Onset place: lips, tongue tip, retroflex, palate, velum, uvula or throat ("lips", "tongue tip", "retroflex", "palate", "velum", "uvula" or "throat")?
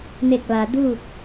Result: tongue tip